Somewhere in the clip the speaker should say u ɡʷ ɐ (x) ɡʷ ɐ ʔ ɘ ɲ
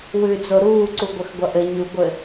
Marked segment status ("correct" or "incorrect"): correct